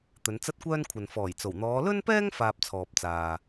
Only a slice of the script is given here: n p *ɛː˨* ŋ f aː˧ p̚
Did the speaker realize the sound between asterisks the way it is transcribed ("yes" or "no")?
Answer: no